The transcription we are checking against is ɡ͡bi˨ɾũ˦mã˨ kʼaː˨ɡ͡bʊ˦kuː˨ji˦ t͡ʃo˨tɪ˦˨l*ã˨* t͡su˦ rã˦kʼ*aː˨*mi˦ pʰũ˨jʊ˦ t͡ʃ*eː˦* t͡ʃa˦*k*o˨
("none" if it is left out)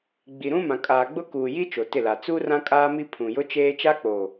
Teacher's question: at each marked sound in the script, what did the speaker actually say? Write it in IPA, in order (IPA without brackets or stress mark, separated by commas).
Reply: a˨, aː˦, eː˦, k͡p